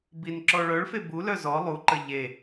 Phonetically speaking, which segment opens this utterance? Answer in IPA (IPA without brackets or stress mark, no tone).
b